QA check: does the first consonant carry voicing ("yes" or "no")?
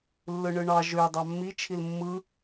yes